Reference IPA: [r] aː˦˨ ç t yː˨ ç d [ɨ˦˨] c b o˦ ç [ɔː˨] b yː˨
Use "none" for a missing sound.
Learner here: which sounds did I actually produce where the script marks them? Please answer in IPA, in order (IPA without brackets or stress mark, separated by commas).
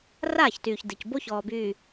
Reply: r, ɨ˨, ɔː˨